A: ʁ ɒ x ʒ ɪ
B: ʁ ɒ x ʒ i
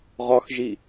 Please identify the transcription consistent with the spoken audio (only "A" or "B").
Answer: B